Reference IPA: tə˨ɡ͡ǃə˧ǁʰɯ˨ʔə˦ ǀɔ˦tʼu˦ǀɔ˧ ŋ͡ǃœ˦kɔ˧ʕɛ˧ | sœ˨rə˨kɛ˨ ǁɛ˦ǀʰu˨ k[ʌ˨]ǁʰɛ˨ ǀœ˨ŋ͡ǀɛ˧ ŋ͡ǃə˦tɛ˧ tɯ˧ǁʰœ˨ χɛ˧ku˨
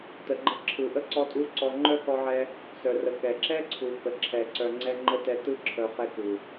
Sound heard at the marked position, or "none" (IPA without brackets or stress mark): ə˨